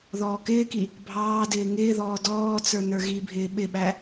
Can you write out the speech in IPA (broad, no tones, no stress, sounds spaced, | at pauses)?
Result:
ð ɔː k ɪː k i | bʱ ɑː d ɪː ŋ ɪː ð ɔː d ɔː t͡s ə˞ n ə˞ ɣ i bʱ ɪː ɓ ɪ ɓ æ